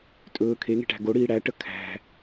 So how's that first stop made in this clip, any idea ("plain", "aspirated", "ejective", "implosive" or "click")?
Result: ejective